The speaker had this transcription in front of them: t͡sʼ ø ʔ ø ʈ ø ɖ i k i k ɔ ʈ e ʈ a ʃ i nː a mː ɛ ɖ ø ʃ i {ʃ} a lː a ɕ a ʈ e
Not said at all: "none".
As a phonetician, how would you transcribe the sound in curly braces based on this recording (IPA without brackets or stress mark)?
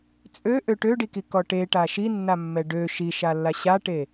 ʃ